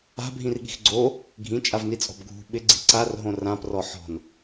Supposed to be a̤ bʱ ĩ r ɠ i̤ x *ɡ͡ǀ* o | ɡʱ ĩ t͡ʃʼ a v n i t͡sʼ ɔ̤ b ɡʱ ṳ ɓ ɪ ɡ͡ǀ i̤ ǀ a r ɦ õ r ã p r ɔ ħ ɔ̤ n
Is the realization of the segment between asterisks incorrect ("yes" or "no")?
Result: no